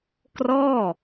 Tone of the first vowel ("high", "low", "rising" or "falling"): falling